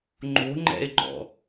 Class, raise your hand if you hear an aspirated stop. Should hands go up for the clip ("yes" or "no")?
no